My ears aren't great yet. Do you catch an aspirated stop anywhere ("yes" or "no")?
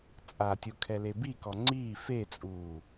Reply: yes